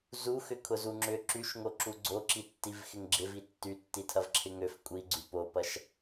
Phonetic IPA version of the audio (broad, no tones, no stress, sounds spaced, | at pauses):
z u x ʏ kʰ ʊ z u ŋ͡ǁ ʏ ǁ y ʃ ŋ o ǁ u ɡ͡ǀ o ǁ i tː i v x ɪ ŋ ɡ͡ǁ ɪ v i tː y tː i tʰ ɐ v ǁʰ ɪ ŋ ø f kʷʼ i ɡ͡ǀ y p o p ɐ ʃ